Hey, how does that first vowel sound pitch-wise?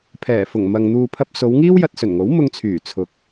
low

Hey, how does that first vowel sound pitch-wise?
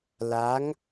rising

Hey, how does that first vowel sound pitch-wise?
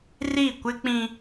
falling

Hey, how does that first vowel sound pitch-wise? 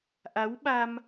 rising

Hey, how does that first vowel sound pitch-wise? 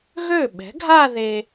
falling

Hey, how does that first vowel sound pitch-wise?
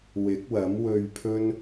rising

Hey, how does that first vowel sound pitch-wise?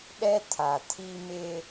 high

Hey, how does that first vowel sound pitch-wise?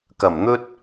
low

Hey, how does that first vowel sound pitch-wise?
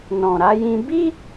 low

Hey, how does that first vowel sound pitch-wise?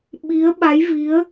rising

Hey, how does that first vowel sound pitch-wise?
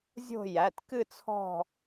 falling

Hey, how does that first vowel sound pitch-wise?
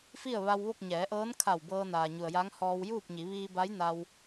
falling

